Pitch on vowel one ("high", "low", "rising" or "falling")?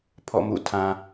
falling